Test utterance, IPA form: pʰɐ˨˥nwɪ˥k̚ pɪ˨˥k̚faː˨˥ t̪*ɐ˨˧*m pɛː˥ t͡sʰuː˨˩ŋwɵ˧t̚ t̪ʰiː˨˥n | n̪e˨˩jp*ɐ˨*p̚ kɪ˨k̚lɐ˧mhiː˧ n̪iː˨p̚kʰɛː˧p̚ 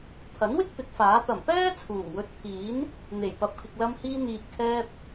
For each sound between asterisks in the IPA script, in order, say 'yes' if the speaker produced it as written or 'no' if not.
no, yes

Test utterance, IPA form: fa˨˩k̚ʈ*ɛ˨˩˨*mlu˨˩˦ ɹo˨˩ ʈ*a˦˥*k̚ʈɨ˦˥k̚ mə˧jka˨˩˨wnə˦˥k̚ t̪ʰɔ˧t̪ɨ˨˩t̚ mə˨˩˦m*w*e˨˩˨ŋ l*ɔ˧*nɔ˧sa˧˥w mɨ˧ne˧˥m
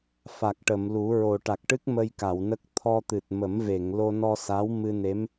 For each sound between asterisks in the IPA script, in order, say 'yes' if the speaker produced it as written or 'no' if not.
no, no, no, no

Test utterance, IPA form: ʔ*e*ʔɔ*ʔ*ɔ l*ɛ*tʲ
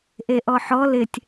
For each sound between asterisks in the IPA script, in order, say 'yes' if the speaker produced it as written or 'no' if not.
yes, no, no

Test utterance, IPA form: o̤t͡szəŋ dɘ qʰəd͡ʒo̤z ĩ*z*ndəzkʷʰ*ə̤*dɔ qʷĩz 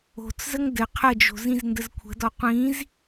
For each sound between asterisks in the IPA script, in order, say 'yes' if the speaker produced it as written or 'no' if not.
yes, yes

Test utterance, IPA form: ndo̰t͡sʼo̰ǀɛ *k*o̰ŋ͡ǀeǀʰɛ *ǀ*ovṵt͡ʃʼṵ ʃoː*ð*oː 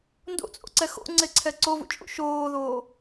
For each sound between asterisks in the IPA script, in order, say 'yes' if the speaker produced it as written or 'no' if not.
no, yes, yes

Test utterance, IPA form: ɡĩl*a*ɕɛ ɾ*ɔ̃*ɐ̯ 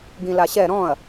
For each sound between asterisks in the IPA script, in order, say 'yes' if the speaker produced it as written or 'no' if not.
yes, yes

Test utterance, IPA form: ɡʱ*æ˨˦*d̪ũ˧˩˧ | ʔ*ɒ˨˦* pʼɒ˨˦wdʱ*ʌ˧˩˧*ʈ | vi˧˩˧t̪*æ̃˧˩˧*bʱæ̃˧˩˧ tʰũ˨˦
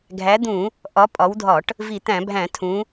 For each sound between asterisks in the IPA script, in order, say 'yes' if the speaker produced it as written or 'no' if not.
yes, yes, no, yes

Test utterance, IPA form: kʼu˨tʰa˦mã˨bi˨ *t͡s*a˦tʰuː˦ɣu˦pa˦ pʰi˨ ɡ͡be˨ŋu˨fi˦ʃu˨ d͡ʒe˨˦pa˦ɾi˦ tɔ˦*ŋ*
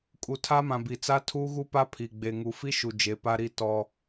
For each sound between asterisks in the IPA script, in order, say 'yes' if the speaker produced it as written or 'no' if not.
yes, no

